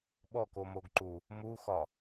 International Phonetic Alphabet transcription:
ɓ ɔ k o m o ɡ ǃ u | m u x ɒ

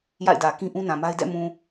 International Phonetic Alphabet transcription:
j a̰˦˨ ɪ̯ d ä˨ k ĩ˦ ʔ ũ˦ n ã˨ m a˦ ɪ̯ d ɛ̰˦˨ m ũ˨

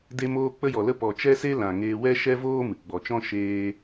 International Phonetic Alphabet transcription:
d e˧ m oː˧ k͡p ə˦ j ɔ˨ l ə˦ p ɔ˨ t͡ʃ ɛ˦ s e˦ l ã˨ ŋ eː˧ w ɛ˦ ʃ ɛ˦ v oː˦ m ɨ˨ ɡ͡b ɔ˨ t͡ʃ ɔ̃˦ ʃ eː˧

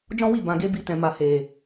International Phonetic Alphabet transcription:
d͡ʒ ɔ̃˦ w i˦˨ b ã˨ ɡ e˧ b i˧ t ɛ̃˨ m a˨ h e˨

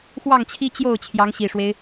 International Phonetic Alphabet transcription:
x w ɑ˥˩ ŋ t͡ɕʰ i˥ t͡ɕ j o˥˩ ʊ̯ t͡ɕʰ j ɑ˧˥ ŋ ɕ i˨˩ ʂ w e˦ ɪ̯

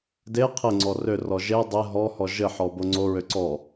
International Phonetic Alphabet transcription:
d e qʰ ɘ ŋ͡ǀ ɔ r ø r ɔ ʒ e dˤ e ɦ ɔ h ɔ ʒ ɘ ħ ɔ b o ŋ͡ǀ o ɹ ø ǀ ɔ

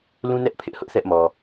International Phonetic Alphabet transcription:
l ũ˦ n ɛ˦ ʔ pʰ ɪ˦ ʔ h ʊ˦ ʔ θ ɛ˦ ʔ m ɔ˨

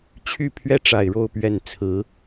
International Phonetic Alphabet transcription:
t͡ɕʰ y˥˩ pʰ ɥ ɛ˥ ʈ͡ʂ a˨˩ ɪ̯ ɻ o˥˧ ʊ̯ p ɥ ɛ˥˩ n t͡sʰ ɹ̩˧˥

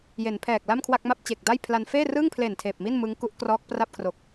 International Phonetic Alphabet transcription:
j e˩˦ n pʰ ɛː˨˩ k̚ l a˥˩ m kʰ w a˥˩ k̚ m a˥˩ p̚ t͡ɕ e˨˩ k̚ d a˥˩ j pʰ l a˧ n f eː˥˩ r ɯː˥˩ ŋ pʰ l e˨˩ n tʰ eː˨˩ p̚ m i˥˩ n m ɯ˦˥ ŋ k u˦˥ ʔ k r ɔː˦˥ k̚ p r a˥˩ p̚ kʰ r o˨˩ k̚

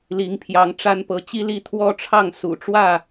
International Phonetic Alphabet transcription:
l i˨˦ ŋ pʰ j ɑ˨˦ ŋ ʈ͡ʂ a˦ n p ɤ˨˦ t͡ɕ i˦ l i˥˨ t̪ʰ w ɔ˦ ʈ͡ʂʰ ɑ˥˨ ŋ s ṵ˨˩ ʈ͡ʂ w ä˥˨

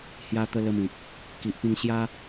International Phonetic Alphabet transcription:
h j a˧ t̪ ə˧ l ə˧ m ĩ˨ k̚ | k i˨ ʔ p ĩ˧ ŋ ɕ j a˦

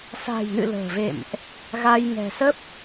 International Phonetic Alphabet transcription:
s a̤˨˩ j n ɨ̰˧˨ l ə̤ː˨˩ v ḛ˧˨ m ʔ | ɣ a˧ j ŋ ɛ̤˨˩ s ə˦˥ p̚

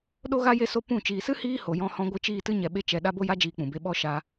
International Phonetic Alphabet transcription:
ɗ o˦ ɣ a˦ j e˦ s o˦ p ũ˦˨ t͡ʃ iː˨ s ɨ˦ h iː˦ h o˨ j ɔ̃˧ h ɔ̃˧ ɡʷ ɨ˧ t͡ʃ iː˦˨ t ɨ˦ ɲ ɛ˧ ɓ e˦ t͡ʃ ɛ˧ ɗ a˦ b o˦ j a˦ d͡ʒ iː˧ k͡p ũ˨ b e˧ ɓ ɔ˦ ʃ a˧

